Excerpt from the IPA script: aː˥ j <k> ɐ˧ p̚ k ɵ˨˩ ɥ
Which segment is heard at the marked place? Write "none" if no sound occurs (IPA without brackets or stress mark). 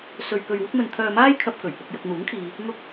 kʰ